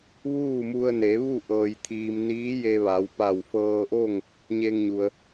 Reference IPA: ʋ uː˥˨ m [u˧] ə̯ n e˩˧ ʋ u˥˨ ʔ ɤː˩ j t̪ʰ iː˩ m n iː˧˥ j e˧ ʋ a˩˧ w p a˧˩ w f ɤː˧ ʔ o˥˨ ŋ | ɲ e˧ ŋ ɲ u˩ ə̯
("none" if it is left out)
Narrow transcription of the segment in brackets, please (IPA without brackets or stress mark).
u˧